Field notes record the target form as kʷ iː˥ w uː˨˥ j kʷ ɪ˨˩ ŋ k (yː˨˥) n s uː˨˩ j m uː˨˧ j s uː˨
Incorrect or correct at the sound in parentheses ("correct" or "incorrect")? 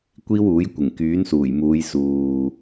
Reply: correct